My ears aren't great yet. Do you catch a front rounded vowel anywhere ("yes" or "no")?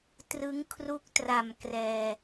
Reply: no